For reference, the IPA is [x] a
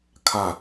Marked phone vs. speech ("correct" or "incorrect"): incorrect